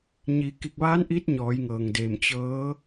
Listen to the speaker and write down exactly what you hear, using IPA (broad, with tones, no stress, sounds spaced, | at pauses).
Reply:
ɲ iː˩˧ k i˧˩ k̚ ʋ aː˧˥ n ʔ i˧˥ t̚ ɲ ɔː˩˧ j ŋ ɤː˩ ŋ d eː˧˩ m t͡ɕ ɤː˧˥